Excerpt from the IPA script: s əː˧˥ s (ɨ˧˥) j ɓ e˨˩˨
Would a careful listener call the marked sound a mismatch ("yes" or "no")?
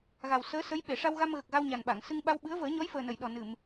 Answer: yes